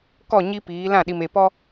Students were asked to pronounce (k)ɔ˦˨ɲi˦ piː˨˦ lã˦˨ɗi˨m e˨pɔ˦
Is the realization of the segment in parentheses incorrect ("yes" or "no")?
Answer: no